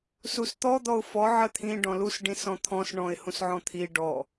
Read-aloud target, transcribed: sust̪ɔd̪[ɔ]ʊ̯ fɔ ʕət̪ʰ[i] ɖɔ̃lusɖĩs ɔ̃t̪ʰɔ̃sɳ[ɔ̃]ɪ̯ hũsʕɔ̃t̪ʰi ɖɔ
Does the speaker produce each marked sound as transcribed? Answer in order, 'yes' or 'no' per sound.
yes, no, yes

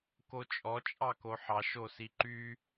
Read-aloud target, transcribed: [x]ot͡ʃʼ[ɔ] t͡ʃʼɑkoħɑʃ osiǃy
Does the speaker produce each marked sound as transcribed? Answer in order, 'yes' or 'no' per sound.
no, yes

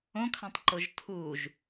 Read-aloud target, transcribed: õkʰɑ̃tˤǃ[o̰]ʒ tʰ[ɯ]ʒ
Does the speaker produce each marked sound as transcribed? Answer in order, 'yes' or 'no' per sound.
no, no

